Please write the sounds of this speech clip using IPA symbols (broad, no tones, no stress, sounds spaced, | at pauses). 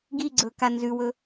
ɡ i ɡ͡ǀ ɵː k a n z ʉ w ɵ